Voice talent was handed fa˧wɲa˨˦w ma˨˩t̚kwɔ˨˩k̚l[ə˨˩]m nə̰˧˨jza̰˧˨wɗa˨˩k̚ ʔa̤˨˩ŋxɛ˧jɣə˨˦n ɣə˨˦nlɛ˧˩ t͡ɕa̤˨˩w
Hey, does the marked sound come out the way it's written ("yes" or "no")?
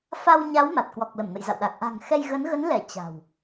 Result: no